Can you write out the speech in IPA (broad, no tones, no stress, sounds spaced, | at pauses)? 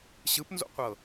ɕ ɯ p n z o̰ qʷ ɤ